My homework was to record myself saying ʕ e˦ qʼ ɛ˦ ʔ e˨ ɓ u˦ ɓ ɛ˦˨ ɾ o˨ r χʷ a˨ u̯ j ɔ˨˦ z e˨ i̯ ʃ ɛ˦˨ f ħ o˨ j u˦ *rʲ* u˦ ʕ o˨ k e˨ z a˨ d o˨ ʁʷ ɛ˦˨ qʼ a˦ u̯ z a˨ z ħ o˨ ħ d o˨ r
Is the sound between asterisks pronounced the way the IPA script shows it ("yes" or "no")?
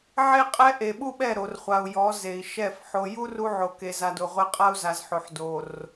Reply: no